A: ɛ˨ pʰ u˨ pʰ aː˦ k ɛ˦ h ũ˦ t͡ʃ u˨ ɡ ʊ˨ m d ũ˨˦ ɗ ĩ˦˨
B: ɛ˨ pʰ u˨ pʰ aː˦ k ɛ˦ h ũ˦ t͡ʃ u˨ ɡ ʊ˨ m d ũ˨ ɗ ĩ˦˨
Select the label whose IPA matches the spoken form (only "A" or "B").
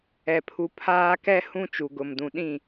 B